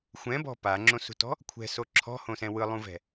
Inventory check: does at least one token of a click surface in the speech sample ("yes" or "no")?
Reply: yes